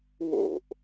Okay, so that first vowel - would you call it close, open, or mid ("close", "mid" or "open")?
mid